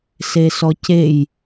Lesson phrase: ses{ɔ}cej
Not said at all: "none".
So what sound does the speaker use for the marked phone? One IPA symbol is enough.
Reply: ɔ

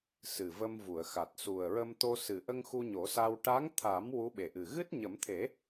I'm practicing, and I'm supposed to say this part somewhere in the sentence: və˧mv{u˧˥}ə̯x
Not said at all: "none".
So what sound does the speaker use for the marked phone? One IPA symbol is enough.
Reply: u˨˩˨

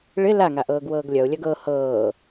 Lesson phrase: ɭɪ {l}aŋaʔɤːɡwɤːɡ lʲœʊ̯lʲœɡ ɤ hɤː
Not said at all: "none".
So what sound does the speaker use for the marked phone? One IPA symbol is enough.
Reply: l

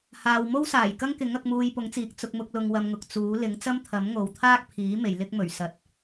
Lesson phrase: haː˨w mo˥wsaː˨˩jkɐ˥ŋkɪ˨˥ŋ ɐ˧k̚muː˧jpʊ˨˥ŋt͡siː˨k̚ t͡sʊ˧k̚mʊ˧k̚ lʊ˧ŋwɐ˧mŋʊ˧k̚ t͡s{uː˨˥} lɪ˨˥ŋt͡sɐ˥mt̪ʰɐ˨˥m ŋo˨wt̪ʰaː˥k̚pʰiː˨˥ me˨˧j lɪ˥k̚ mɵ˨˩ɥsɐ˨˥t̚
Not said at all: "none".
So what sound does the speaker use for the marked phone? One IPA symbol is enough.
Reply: uː˨˥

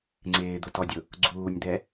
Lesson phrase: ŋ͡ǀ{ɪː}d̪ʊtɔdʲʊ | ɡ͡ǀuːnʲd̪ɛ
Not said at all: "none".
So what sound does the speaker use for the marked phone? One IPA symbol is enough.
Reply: ɪː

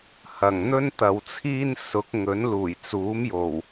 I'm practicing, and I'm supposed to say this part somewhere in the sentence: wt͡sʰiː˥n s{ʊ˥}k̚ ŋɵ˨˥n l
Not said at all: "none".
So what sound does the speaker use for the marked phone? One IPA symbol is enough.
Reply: ʊ˨˥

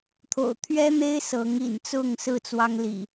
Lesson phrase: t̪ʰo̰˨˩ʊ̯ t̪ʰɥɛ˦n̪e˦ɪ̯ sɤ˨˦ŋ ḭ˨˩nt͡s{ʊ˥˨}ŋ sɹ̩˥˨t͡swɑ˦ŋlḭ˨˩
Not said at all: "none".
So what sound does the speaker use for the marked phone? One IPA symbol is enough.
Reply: ʊ˥˨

